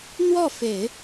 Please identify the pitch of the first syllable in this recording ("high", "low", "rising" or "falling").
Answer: falling